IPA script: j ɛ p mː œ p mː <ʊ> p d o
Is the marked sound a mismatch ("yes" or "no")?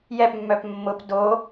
no